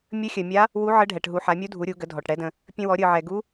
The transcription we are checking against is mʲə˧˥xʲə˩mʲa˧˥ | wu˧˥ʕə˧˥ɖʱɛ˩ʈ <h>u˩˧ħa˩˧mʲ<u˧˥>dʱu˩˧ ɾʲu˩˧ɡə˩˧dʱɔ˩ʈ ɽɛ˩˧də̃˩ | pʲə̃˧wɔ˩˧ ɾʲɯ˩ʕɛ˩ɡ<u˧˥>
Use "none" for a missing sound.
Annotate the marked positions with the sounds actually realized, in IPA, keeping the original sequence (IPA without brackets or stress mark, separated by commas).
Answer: ɦ, u˧˥, u˧˥